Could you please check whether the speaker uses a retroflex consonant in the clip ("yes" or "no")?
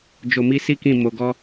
no